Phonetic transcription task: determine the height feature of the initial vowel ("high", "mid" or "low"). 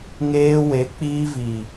mid